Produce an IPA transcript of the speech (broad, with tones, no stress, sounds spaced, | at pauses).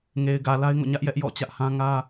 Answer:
ŋ e˨ ɪ̯ ɡ ä˨ l a˦ ɪ̯ ŋ o̰˦˨ ɲ ä˦ ʔ j ɛ˦ ʔ j ɔ̰˦˨ t͡ɕ ä˦ ʔ h ã˦ ŋ ä˦